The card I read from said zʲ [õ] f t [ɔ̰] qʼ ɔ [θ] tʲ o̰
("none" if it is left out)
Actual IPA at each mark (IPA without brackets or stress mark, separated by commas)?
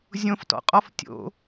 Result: õ, ɔ̰, f